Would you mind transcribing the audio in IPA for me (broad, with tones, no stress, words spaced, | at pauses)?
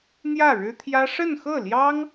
n̪jä˥˩ɻɻ̩˥t̪ʰjä˥ ʂə˥˧nxɤ˥˩ljɑ˥ŋ